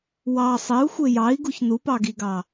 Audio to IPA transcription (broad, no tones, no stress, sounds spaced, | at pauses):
w ɑ sˤ e u̯ xʷ e j ɑ i̯ ɡ u ç n u p ɑ ɡ i ɡ ɑ